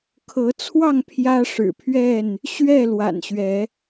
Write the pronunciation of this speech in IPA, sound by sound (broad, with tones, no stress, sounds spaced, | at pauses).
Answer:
kʰ ɤ˨˦ t͡sʰ w ɑ˥˨ ŋ pʰ j ä˦ ʂ ɻ̩˨˩ pʰ ɥ ɛ˥˨ n | ɕ ɥ ɛ˥˨ l w a̰˨˩ n ɕ ɥ ɛ˨˦